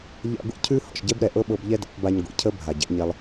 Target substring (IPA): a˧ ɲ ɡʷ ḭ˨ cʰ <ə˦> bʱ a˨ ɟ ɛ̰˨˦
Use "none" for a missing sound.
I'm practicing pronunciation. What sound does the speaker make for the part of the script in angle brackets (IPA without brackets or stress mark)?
ə˦